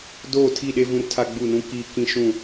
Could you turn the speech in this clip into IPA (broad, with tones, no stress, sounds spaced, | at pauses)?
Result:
d oː˦˨ tʰ i˦˨ ɗ e˦ v ũ˦ r tʰ a˦ ɡ͡b uː˦˨ n ũ˦ k iː˦˨ k ĩ˦ ʃ ũ˦˨